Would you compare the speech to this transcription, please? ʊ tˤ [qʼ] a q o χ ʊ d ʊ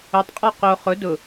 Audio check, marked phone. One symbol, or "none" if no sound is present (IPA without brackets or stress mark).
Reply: qʼ